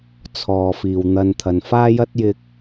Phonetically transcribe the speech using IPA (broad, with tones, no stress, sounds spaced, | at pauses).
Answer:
t͡sʰ ɔː˨ f iː˨ w n̪ ɐ˧ n t̪ʰ ɐ˨ n f aː˥ j ɐ˥ t̚ j ɪ˧ k̚